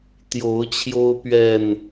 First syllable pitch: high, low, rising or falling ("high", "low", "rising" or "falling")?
rising